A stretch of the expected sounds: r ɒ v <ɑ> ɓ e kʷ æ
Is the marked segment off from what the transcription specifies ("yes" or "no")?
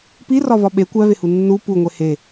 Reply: yes